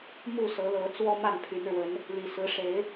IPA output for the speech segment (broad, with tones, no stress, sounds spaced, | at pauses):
m u˥˨ s ɤ˨˦ l ɤ˨˦ t͡s w ɔ˦ m a˥˨ n pʰ y˨˦ n ɻ w ə˨˦ n | l i˨˩ s ɹ̩˨˦ ʂ e˨˦ ɪ̯